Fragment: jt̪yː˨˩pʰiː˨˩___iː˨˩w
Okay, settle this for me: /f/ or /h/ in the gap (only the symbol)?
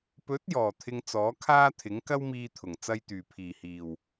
h